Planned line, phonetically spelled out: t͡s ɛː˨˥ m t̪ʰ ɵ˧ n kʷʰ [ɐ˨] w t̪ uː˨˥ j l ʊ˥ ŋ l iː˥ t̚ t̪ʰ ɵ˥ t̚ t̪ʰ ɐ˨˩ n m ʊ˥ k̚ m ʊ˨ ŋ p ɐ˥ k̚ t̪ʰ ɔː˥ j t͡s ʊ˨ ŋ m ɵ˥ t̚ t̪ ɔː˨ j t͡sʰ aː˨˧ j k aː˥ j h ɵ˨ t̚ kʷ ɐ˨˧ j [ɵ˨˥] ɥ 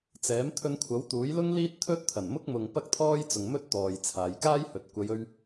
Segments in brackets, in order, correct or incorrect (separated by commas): incorrect, incorrect